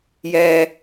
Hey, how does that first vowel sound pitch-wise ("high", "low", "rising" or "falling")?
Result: high